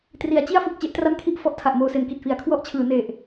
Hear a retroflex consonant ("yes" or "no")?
no